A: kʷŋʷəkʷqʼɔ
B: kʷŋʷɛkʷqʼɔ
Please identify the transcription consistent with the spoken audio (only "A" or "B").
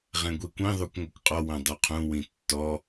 B